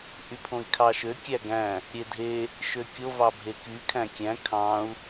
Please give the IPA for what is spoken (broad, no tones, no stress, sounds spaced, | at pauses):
ʔ y pʰ õ i̯ kʰ ɑ ʃ ø kʲ æ ɡ æ̃ | ɾʲ e dʱ e | ʃ ø kʲ o v ɑ bʱ e k y kʰ æ̃ kʲ æ̃ kʰ ɑ̃ u̯